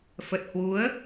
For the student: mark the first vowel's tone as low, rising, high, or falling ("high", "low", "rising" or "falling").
low